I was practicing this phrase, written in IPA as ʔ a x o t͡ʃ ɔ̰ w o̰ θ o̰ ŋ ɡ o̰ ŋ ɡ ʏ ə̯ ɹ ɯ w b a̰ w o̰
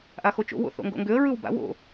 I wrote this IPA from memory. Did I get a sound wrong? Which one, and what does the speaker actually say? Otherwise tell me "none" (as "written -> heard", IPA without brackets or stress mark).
ɔ̰ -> o̰